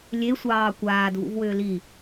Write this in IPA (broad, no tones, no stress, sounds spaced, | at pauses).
lʲ e sʷ ɑː kʷ aː d v ṵ v w ʏː l i